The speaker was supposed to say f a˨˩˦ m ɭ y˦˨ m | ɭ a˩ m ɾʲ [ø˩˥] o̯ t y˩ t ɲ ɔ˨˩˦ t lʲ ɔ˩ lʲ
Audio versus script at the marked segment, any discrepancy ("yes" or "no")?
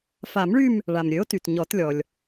no